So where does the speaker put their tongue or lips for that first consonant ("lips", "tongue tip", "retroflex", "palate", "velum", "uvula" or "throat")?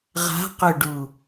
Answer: uvula